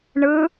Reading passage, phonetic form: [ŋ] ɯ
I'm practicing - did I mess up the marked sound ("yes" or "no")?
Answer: yes